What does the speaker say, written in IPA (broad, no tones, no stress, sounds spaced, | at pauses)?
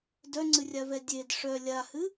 d œ ŋ͡ǀ ɨ rʲ a v ɛ dʲ e d ʂ œ lʲ a h ɨ